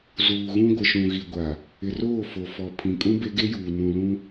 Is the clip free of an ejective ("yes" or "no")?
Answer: no